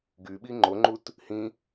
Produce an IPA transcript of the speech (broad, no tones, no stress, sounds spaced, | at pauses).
ɡ y ɓ i ŋ͡ǃ o ŋ͡ǃ u t | h ĩ